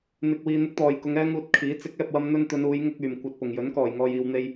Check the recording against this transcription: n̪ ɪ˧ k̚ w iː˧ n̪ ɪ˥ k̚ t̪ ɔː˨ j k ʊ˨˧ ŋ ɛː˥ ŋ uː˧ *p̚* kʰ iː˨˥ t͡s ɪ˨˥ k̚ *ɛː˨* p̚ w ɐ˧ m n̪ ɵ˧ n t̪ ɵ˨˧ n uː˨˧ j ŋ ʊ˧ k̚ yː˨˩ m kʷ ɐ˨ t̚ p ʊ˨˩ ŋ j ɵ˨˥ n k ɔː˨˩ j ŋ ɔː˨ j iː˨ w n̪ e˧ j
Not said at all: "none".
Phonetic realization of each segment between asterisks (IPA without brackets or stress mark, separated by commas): t̚, ɛː˨